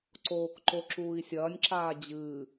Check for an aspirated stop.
absent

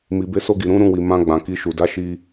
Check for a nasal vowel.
present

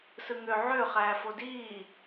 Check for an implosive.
absent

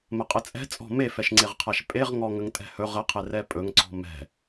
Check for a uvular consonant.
present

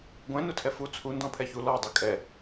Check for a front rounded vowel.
absent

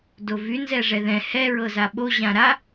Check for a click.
absent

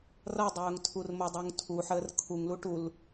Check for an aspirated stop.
present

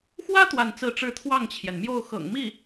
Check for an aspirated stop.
present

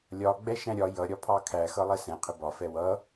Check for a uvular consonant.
present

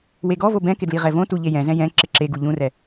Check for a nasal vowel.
present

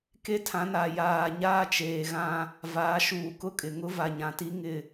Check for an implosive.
absent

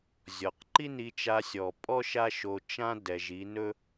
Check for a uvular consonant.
present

